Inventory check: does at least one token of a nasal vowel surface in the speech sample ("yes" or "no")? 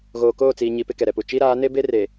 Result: no